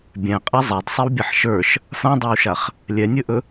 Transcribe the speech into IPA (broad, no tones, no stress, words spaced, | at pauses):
bʲæ̃qʼɛ zˤædsˤɛwbʲaħ ʃə˞ʃ | fãdˤawʃaχ | lʲɛnʲɵʔɵ